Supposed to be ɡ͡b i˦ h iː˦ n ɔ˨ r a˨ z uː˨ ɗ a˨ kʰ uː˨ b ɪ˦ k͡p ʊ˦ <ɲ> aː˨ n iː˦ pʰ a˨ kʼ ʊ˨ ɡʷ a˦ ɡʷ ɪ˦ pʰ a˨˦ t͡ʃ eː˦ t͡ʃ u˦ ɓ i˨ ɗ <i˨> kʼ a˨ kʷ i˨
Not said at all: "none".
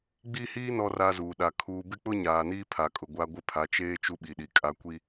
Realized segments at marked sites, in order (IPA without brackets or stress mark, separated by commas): ɲ, i˨